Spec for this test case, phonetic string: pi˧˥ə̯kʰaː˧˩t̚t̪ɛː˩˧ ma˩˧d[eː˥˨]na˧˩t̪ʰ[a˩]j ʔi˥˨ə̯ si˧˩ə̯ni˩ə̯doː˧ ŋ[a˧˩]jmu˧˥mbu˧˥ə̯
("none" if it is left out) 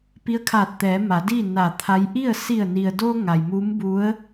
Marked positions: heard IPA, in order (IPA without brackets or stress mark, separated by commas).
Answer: iː˥˨, a˧˥, a˩